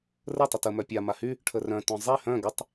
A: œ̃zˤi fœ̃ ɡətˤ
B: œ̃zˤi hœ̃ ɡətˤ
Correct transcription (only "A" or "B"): B